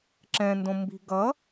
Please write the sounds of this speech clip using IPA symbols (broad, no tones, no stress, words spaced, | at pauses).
ǁɛ̃ndõ mbi̤ɡʌ